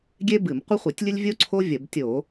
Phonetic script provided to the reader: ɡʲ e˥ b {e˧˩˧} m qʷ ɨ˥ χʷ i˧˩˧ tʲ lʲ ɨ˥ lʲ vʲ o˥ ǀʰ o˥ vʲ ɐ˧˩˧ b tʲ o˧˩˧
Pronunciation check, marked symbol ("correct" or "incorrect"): incorrect